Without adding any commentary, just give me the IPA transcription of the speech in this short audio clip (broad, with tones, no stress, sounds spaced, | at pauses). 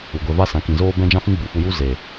u˨ ɡʷ ɛ˨ v a˦ s ã˨˦ k ĩ˨ z oː˦ b ɛ̃˦ d͡ʒ ã˦ f ĩ˦ ɡ͡b u˨ f u˧ j u˦ z e˨